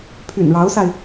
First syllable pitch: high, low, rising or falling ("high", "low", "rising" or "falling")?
low